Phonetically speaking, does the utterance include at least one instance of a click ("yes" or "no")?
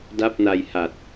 no